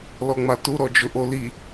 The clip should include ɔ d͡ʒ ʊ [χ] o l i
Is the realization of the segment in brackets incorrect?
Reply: yes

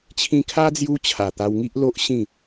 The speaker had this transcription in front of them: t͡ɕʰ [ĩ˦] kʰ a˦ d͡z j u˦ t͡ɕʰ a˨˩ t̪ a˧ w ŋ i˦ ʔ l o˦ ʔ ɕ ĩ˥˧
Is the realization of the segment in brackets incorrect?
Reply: yes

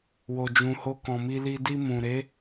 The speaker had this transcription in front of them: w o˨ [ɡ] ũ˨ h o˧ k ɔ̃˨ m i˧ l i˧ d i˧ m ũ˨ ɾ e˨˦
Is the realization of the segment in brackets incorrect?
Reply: yes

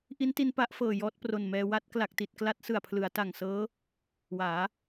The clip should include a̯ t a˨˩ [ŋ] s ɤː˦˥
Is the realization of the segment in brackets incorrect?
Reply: no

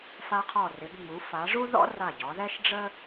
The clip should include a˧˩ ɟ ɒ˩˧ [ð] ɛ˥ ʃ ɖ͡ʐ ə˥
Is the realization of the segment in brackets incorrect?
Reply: no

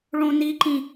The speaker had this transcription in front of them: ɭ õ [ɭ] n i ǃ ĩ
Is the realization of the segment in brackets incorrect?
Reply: yes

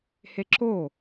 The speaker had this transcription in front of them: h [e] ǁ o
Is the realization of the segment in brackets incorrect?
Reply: no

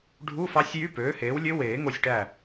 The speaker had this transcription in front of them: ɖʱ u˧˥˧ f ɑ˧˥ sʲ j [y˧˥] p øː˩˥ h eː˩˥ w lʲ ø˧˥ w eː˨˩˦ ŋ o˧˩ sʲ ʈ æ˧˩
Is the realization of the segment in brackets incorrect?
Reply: yes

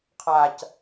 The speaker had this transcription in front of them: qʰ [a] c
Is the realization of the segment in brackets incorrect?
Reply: no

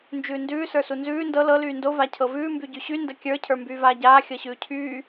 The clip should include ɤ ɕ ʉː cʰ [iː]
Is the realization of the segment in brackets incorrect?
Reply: yes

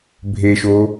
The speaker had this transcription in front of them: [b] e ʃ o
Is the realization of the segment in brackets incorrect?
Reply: yes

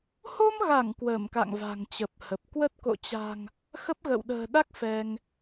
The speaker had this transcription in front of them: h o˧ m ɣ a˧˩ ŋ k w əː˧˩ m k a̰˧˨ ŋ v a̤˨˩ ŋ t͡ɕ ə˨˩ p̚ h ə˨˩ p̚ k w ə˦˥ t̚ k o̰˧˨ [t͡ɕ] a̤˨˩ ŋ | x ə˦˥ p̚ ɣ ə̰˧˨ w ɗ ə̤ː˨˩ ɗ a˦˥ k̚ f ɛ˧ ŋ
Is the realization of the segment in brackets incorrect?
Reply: no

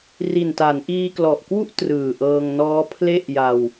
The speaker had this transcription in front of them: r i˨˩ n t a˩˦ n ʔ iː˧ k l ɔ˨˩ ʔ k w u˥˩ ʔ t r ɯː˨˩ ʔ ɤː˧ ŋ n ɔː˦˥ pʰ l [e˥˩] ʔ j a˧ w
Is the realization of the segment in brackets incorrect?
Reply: no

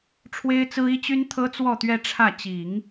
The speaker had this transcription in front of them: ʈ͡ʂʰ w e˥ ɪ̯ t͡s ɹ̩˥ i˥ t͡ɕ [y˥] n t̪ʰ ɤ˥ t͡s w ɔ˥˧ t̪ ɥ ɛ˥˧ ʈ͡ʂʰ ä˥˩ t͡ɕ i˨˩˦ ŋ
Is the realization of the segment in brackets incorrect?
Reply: no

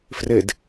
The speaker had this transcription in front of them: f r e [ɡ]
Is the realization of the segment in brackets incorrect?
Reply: yes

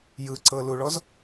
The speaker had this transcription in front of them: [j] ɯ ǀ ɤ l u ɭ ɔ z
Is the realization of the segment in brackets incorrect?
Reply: no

